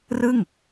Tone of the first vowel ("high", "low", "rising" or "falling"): falling